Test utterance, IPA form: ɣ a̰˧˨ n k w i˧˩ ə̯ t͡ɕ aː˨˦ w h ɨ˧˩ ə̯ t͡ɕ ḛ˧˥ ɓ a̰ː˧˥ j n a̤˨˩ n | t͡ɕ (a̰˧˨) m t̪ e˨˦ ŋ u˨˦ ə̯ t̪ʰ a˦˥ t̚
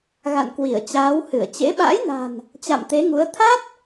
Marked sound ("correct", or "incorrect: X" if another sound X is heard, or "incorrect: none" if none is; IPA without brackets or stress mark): correct